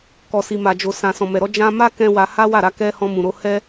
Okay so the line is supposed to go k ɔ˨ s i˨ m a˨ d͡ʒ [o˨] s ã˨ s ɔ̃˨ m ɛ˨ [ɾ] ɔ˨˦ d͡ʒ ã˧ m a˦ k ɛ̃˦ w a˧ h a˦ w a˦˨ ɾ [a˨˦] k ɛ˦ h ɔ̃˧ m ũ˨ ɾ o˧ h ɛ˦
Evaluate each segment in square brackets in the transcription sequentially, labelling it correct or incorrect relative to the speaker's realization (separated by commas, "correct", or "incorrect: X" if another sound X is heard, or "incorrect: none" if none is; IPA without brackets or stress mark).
correct, correct, incorrect: a˧